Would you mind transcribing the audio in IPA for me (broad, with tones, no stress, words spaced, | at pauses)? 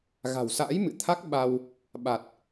ɣa̤˨˩wsa̰ː˧˥j mɨ̰˧˨t̪ʰa˦˥k̚ ɓa˧w | ɓa˨˩t̚